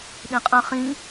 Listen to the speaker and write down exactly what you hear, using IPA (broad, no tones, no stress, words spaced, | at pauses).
ɗĩqʼə̃ χĩ